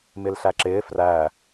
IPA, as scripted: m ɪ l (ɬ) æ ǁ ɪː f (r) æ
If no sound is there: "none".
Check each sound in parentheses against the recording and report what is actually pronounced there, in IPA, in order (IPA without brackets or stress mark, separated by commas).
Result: ɬ, r